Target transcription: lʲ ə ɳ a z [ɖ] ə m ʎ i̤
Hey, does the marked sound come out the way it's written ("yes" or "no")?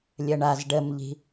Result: yes